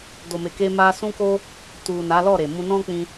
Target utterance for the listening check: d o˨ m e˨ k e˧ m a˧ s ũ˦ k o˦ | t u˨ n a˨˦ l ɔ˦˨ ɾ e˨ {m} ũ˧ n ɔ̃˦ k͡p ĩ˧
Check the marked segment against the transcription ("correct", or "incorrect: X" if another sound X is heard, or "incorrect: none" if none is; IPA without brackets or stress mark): correct